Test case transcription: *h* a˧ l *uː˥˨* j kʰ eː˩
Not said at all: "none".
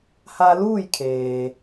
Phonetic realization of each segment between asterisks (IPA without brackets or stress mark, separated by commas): h, uː˥˨